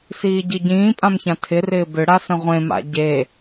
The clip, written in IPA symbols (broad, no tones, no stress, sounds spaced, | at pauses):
s iː ɟ i ɟ ĩː pʼ ã m ç ã tʰ ɪ r ɪː b ʏ ɽ a s ə̃ ʁʷ ẽ m a̰ ɟ e